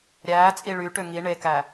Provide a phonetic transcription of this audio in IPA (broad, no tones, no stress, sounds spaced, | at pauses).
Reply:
ɾʲ æː t͡sʼ i ɭ y ʈ ø ŋ i ɳ e k æ